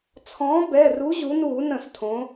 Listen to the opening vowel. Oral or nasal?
nasal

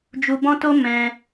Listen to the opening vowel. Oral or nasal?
oral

